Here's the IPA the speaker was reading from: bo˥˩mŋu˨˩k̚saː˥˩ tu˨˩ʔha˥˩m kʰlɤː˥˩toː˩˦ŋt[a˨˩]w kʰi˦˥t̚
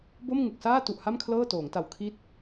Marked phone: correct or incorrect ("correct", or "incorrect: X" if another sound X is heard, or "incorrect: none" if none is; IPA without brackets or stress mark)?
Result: correct